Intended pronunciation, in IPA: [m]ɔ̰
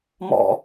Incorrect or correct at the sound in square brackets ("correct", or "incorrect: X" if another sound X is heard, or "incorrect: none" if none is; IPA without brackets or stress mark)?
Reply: correct